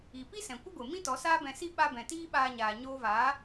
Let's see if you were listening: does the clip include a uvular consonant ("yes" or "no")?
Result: no